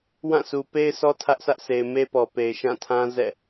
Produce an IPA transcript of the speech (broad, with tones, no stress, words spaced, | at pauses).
wã˦˨sʰu˨ pe˦ɪ̯sɔ˦ tʰä˦ʔsä˦ʔsʰe˨ɪ̯ me˦pɔ˨pe˨ɪ̯ ʃã˦˨tʰã˦ zɛ̰˦˨